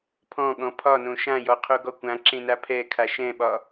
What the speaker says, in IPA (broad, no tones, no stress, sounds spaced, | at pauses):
pʰ ɔ̃ ɠ ɔ̃ pʰ ɒ n õ ʃ ã j ɔ qʰ o ɡ ɔ kʷ ã ǁ ẽ n a pʰ ɛ kʰ a ʃ ɛ̃ ɓ ɒ